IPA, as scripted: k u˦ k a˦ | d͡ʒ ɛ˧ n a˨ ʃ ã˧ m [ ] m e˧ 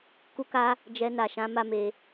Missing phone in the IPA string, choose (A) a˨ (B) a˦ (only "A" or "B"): B